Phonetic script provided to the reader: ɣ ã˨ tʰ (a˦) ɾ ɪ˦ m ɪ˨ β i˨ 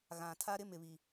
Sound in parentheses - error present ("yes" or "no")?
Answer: no